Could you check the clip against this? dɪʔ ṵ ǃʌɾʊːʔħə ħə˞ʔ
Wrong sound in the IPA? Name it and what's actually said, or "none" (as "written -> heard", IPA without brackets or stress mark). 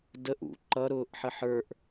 ɪ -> ə